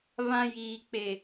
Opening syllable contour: high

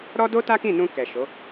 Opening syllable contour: high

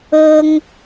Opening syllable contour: high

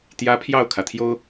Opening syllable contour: rising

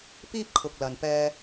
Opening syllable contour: high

